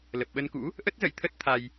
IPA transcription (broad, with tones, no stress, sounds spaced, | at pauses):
l ə˨˩ p̚ ɓ ə˧ n k ṵ˧˥ | ʔ ə˦˥ t̚ z ə̰˧˨ j t̪ʰ ə˦˥ t̚ t̪ʰ a˧ j